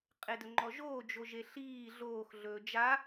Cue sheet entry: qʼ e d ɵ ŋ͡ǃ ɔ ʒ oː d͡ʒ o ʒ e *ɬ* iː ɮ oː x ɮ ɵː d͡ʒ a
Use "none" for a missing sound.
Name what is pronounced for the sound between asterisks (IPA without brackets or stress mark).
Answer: ɬ